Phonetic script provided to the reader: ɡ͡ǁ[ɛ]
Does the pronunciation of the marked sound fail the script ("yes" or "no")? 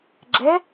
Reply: no